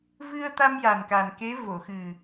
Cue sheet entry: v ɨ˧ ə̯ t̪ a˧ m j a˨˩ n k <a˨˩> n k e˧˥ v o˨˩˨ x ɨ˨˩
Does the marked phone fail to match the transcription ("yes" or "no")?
no